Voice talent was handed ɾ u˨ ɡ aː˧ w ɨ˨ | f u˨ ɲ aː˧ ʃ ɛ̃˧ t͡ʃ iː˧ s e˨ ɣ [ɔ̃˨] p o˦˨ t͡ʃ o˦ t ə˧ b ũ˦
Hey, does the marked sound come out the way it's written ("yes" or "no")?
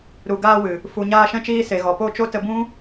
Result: no